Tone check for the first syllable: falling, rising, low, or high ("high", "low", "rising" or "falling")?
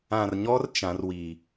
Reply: low